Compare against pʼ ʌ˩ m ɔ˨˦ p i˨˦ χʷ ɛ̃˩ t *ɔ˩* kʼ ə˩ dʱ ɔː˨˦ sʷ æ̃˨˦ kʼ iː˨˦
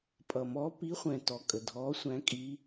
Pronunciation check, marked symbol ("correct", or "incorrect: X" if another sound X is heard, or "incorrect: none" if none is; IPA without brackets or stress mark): correct